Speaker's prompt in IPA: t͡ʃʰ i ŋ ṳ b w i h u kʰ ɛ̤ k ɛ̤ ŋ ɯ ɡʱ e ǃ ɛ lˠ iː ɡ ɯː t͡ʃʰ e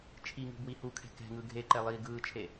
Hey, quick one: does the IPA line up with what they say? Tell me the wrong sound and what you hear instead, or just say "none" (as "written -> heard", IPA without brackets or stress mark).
none